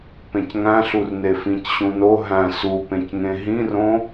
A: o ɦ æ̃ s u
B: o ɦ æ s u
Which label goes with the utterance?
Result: A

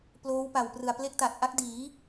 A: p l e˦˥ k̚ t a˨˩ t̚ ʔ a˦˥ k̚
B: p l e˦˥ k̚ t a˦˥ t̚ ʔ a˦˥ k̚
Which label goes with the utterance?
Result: A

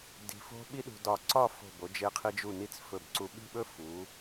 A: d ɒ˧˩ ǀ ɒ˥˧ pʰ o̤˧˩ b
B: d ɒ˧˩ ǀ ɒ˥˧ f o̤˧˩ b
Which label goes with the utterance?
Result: B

